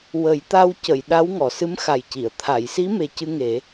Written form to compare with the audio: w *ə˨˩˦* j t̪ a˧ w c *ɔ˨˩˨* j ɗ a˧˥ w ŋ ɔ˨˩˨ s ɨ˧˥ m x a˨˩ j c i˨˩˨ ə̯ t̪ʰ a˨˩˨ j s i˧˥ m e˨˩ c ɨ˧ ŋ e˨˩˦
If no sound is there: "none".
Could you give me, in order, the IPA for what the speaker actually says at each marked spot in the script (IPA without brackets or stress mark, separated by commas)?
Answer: ə˨˩˦, ə˨˩˨